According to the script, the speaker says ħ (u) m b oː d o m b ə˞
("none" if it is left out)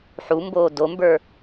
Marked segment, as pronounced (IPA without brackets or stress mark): u